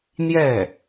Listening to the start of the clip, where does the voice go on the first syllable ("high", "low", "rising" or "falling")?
falling